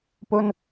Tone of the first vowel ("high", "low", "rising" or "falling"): high